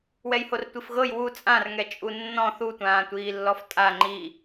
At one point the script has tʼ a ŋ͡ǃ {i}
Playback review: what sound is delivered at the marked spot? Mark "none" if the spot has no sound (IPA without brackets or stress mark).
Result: i